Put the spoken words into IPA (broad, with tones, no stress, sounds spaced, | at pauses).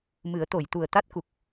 m ɨ˨˩˦ ə̯ t̪ o˨˩˨ j t̪ u˨˩ ə̯ t̪ a˦˥ t̚ k u˨˩ k̚